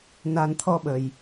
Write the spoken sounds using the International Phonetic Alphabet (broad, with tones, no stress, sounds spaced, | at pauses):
n a˨˩ n t̪ʰ ɔ˧ ɓ ə˨˩ j